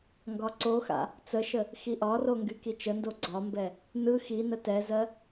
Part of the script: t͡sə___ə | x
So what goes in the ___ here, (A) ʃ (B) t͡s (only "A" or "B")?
A